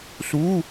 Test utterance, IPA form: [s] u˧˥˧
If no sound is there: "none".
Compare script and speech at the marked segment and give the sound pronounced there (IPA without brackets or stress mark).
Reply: s